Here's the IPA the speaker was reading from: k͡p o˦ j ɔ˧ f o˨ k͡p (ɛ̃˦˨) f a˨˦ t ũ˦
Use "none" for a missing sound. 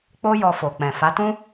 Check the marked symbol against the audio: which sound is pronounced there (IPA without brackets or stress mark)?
ɛ̃˨